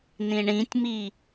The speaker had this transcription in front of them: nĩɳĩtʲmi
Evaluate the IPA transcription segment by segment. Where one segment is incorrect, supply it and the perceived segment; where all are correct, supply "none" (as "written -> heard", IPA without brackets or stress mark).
none